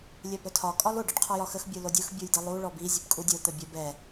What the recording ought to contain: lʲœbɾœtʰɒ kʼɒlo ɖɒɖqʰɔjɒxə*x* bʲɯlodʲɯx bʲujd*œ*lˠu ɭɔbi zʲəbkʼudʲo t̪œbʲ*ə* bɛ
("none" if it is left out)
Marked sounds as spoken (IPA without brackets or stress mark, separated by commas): x, ɛ, œ